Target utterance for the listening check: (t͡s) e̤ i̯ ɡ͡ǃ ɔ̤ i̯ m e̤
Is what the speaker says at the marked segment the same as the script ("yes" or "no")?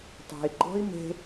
no